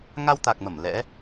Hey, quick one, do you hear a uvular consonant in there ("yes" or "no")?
no